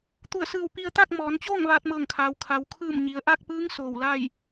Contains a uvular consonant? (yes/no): no